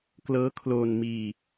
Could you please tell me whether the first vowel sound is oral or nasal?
oral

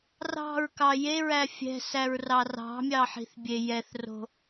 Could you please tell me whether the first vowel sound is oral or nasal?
oral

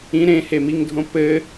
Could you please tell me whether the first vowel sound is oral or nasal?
nasal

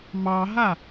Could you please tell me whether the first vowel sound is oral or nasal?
oral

